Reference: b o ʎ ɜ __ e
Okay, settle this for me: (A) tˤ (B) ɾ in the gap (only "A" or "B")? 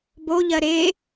B